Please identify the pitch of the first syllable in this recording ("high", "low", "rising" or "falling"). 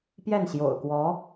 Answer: falling